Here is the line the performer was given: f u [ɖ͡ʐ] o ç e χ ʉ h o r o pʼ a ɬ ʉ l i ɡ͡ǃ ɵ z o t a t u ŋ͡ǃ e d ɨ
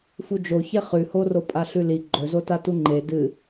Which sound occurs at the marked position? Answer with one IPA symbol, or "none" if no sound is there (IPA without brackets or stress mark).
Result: d͡ʒ